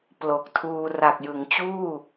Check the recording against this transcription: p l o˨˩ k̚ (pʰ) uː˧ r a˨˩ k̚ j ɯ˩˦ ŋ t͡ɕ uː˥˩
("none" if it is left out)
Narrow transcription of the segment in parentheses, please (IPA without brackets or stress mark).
tʰ